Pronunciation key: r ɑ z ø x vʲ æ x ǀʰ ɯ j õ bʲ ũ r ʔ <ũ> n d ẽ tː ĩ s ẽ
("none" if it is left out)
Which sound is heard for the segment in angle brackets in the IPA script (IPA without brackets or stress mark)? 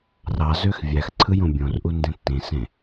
u